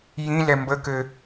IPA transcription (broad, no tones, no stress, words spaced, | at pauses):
jĩlɛ mbəkɘ